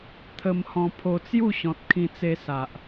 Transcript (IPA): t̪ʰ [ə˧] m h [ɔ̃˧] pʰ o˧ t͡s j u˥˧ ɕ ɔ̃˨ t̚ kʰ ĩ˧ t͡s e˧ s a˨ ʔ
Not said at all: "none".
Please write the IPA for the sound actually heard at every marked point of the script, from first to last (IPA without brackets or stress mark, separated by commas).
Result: ə˧, ɔ̃˧